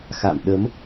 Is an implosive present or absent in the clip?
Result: present